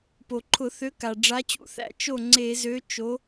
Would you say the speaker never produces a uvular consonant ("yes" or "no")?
yes